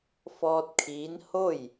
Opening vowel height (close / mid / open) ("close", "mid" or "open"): mid